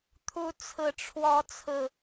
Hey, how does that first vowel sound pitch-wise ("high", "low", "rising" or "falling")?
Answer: rising